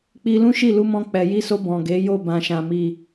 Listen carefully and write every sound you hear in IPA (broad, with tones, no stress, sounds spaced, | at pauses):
k͡p i˧ l ũ˦ ʃ i˦˨ l u˧ m ɔ̃˧ k͡p ɛ˨ j i˧ s o˧ b ɔ̃˨ ɡ e˨˦ j o˦˨ b ã˨ ʃ ã˨ m i˨